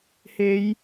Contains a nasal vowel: no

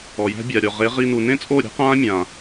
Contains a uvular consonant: yes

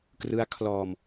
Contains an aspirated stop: yes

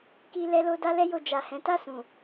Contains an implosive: no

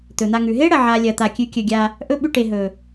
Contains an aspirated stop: no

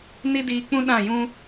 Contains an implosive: yes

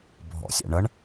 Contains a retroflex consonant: yes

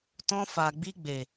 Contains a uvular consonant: no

